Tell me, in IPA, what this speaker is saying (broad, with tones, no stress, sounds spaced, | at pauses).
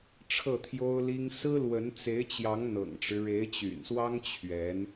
ʈ͡ʂʰ ɤ˥˩ t̪ʰ j o˥ ʊ̯ l i˥ ŋ s ɹ̩˥ l w ə˧˥ n t͡s e˧˥ ɪ̯ t͡ɕ j ɑ˧˥ ŋ n̪ ɤ̰˨˩ ŋ ʈ͡ʂ ɻ̩˦ ɻ e˧˥ ɪ̯ t͡ɕ y̰˨˩ n s w ɑ˥ ŋ t͡ɕʰ ɥ ɛ˧˥ n